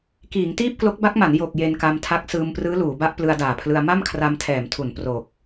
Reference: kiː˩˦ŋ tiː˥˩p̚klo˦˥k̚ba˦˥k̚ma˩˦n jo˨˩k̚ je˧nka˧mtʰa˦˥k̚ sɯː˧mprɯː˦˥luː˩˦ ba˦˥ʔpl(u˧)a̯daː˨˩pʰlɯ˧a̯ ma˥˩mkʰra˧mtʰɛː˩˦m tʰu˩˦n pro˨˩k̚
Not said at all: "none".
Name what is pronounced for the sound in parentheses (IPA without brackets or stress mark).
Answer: ɯ˧